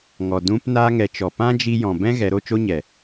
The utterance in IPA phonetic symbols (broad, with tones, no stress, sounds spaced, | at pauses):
ŋ ɔ˨ d ũ˧ p n aː˧ ŋ ɛ˨ t͡ʃ ɔ˨ p ã˦ d͡ʒ i˧ j ɔ̃˨ b ɛ̃˦ ɣ ɛ˨˦ ɾ o˧ t͡ʃ o˦ ɲ ɛ˨